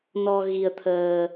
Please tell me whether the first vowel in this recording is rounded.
yes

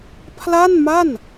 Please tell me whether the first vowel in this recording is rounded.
no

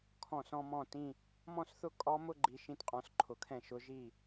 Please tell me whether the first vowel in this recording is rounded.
yes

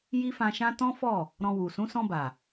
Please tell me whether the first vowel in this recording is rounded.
no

